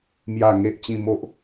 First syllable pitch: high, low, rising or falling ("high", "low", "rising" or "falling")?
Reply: low